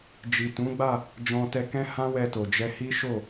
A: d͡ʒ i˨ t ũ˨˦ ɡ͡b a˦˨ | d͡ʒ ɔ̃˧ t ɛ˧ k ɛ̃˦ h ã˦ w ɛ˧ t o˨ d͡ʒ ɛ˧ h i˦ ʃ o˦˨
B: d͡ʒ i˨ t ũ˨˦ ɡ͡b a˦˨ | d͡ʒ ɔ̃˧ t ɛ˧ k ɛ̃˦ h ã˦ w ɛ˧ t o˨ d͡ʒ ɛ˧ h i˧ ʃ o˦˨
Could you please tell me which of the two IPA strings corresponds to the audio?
A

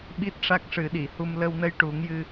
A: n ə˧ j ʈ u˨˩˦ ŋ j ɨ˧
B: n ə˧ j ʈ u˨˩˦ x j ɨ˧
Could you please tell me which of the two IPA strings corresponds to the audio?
A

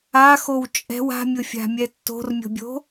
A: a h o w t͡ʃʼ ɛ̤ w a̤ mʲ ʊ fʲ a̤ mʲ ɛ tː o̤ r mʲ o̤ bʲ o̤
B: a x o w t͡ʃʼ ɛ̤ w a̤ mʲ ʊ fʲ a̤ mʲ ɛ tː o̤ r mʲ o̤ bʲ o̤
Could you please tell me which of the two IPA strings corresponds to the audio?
B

